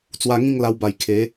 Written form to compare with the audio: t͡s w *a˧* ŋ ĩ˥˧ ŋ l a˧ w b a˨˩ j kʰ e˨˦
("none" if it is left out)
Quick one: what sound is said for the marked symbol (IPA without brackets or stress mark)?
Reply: a˧